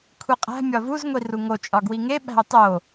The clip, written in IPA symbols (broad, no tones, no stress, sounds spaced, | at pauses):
kʷʰ i qʼ æ̤ mʲ ɒ v u z ŋʷ i r u ŋ o t͡ʃʼ ɒ ɡ w i ŋ e ɓ æ̤ o̯ tˤ o